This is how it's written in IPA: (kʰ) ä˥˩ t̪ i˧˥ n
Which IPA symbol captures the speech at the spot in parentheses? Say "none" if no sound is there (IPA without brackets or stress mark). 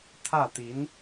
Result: t̪ʰ